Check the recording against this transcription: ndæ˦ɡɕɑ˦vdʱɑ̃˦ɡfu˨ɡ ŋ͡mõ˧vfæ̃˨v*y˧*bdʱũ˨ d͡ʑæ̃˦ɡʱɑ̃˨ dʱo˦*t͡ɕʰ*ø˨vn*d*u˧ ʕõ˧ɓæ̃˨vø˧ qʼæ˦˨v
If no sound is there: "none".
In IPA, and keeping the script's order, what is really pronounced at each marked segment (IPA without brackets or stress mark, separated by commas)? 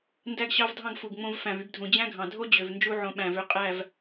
y˧, d͡ʑ, d͡ʒ